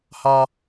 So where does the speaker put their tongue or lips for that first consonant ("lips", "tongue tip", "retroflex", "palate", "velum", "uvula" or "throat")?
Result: throat